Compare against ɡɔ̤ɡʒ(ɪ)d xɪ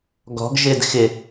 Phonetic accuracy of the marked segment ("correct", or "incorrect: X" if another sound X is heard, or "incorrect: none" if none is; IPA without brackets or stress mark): correct